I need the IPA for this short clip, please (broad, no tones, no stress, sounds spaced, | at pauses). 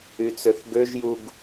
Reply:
y t͡s ø θ ɡ ø ʒ j u ɡ